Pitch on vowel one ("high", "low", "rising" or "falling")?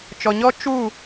low